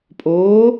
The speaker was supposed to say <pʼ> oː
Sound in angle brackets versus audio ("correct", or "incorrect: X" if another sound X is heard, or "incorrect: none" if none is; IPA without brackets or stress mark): correct